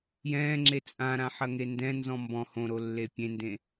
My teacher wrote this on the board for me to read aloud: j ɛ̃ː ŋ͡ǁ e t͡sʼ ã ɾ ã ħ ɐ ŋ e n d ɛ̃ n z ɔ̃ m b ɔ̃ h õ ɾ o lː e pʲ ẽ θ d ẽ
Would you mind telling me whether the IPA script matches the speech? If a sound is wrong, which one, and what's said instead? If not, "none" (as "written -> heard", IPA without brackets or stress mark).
θ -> n